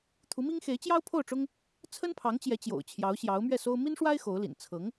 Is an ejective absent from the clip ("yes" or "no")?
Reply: yes